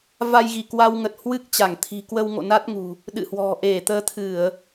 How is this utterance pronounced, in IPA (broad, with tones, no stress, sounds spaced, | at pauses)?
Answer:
v a˧ j ɣ i˧˩ k w a˧ w ŋ ə˨˩ t̚ h w ɨ˦˥ k̚ t͡ɕ a˧˩ ŋ t̪ʰ i̤˨˩ k w ə˧ w ŋ o̰˧˨ n a˦˥ t̚ ŋ ṳ˨˩ | ɗ ɨ̰˧˨ h w ɔ̤˨˩ ʔ e˧˩ t̪ əː˨˦ t̪ʰ ɨ˧˩˨ ə̯